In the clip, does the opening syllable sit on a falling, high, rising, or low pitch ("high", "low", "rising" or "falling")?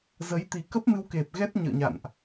rising